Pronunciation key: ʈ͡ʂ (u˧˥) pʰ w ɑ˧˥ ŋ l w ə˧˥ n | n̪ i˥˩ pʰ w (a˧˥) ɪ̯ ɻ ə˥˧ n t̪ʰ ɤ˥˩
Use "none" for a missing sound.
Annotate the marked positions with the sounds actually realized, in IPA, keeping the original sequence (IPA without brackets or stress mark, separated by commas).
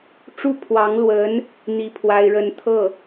u˥˩, a˥